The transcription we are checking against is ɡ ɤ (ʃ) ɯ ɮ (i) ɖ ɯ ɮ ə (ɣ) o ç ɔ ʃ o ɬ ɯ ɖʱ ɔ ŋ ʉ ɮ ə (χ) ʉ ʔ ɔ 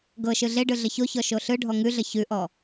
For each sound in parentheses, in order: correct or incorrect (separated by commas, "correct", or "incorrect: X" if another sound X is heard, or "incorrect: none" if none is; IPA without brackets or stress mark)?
correct, incorrect: e, incorrect: ç, incorrect: ç